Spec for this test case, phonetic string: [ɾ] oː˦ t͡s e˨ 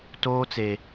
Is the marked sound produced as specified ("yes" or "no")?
no